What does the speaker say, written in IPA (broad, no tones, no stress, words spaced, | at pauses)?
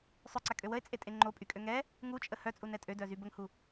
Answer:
sˤœǀakʼø wəe̯t͡sʼetʼe ŋ͡ǃopʼykʼø ŋɛ | ŋut͡ʃʼə hœt͡sʼunɛ tʼødœzy bəŋhu